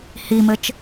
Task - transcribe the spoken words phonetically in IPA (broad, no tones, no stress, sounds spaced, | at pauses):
h i m ɘ t͡ʃ